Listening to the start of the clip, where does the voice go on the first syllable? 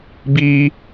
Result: high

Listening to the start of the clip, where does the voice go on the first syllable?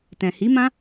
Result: low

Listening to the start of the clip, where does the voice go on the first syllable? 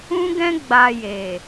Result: high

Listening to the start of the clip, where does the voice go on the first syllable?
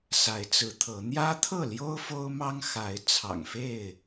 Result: rising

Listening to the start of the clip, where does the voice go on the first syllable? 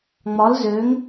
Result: rising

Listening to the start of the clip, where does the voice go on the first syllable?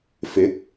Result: rising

